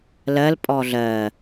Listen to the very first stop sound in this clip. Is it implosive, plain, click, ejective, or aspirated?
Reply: ejective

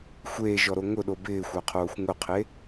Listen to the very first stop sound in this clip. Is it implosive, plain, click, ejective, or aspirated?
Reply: implosive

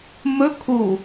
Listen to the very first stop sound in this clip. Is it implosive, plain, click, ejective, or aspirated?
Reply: aspirated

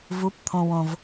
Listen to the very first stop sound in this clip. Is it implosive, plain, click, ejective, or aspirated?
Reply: plain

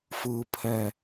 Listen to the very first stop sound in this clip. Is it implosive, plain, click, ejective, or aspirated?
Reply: aspirated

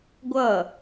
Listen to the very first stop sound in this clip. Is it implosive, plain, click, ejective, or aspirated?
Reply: plain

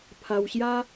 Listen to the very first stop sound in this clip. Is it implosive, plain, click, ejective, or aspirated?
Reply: aspirated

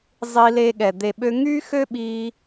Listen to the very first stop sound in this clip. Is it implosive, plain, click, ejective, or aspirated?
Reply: implosive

